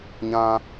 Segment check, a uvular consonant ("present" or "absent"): absent